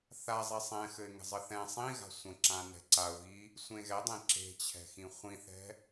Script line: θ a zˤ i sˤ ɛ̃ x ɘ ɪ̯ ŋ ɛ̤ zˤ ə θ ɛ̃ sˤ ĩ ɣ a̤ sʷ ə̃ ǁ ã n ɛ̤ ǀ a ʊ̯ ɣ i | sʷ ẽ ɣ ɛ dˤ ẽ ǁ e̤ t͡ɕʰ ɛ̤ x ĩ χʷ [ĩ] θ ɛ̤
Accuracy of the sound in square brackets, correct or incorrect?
correct